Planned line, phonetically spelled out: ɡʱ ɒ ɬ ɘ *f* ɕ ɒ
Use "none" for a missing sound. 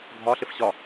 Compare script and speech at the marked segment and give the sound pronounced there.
f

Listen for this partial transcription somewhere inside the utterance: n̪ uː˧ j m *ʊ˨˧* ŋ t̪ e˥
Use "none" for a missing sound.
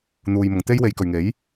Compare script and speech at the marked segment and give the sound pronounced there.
ʊ˨˧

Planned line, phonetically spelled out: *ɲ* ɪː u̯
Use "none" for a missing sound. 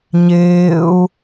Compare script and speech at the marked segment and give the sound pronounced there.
ɲ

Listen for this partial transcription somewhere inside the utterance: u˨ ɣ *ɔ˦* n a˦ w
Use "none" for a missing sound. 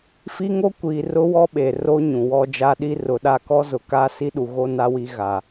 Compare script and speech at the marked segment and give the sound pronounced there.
o˦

